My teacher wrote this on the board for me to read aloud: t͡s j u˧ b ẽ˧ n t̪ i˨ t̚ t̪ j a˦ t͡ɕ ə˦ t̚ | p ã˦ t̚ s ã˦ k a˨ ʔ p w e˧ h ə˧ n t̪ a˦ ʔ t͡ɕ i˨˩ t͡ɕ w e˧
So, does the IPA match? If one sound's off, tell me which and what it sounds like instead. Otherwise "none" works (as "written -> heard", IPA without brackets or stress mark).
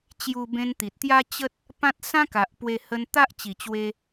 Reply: t͡s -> t͡ɕ